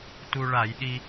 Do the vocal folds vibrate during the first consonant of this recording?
no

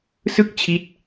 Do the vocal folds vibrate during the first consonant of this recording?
no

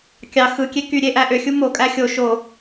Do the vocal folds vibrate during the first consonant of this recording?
no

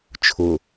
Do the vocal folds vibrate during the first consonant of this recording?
no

